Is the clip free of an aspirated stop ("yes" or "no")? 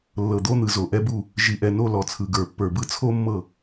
no